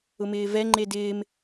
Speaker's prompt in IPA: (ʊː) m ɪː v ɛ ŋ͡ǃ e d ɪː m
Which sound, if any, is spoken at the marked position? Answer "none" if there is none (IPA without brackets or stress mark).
ʊ